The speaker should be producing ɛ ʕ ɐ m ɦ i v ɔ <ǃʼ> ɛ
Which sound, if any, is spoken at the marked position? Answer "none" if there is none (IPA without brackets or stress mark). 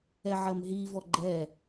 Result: ɡ͡ǃ